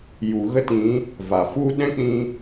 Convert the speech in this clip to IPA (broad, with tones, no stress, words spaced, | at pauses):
ju˨ɣə˦ tĩ˨˦ | va˨fu˦ ɗɛ̃˦k͡pĩ˧